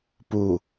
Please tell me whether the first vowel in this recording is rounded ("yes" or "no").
yes